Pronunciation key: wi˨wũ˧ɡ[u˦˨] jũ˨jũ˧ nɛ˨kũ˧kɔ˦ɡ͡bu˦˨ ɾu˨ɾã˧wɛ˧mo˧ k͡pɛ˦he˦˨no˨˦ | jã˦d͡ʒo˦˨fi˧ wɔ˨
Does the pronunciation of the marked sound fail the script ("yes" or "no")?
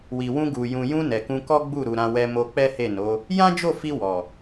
yes